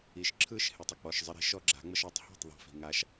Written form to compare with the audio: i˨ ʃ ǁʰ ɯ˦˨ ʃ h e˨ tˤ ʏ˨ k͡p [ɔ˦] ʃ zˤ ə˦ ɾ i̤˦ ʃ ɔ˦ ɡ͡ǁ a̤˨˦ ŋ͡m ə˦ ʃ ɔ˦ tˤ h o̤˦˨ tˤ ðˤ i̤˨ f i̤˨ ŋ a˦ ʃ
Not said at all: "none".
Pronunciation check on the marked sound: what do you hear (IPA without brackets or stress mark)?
ɔ˨